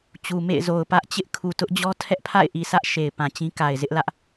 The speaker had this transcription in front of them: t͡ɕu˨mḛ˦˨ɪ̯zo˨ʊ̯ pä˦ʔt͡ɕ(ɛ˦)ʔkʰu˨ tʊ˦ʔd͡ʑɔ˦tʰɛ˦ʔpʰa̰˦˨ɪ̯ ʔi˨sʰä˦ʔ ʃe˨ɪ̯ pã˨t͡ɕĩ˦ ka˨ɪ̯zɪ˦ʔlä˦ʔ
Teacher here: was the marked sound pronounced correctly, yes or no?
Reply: no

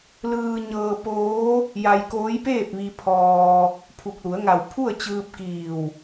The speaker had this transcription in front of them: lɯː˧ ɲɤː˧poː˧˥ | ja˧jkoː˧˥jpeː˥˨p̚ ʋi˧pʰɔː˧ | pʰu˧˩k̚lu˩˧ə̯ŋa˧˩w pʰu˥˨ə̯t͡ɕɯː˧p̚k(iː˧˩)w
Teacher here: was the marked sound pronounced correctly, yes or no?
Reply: yes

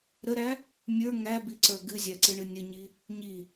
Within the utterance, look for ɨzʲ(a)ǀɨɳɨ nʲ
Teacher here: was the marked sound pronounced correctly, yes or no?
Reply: no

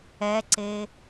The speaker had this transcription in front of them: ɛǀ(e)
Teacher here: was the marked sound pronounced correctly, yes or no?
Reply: yes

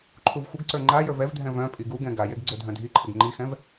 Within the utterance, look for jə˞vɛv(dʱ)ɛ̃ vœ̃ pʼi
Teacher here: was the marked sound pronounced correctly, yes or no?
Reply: yes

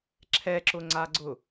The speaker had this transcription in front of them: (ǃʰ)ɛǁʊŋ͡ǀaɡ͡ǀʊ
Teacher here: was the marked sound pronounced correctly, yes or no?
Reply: no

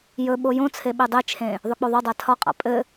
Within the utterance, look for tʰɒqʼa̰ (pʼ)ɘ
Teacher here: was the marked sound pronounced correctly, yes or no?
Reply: yes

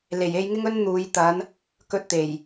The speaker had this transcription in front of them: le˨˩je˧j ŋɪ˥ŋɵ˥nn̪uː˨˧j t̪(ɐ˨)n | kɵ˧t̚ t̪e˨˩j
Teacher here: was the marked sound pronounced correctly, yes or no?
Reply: no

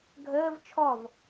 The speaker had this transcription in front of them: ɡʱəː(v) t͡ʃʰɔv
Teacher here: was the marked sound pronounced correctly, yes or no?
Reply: yes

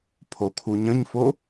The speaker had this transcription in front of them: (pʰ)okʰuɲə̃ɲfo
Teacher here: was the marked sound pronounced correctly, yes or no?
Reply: yes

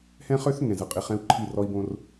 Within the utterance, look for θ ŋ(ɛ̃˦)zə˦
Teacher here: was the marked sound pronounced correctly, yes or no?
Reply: no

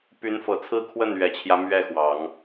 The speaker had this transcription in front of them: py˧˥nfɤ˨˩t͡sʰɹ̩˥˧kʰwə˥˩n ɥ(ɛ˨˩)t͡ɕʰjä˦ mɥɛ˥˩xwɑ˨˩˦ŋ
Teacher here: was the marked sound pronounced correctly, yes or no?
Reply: yes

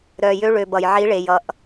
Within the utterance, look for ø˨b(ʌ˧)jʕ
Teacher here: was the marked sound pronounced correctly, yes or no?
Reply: no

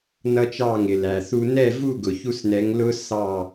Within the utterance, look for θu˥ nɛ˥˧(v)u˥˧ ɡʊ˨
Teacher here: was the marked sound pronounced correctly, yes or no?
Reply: yes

